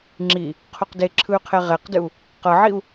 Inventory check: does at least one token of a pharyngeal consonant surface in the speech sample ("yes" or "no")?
yes